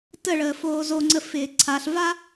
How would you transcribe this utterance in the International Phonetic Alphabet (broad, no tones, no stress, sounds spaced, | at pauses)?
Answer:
t ə ɭ əː f oː z o ŋ͡ǀ ə f ɪː ǀʰ a ɬ v a